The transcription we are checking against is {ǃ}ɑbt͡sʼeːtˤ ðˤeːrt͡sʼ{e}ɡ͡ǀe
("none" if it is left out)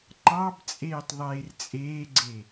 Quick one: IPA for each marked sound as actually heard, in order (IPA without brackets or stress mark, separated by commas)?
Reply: ǃ, eː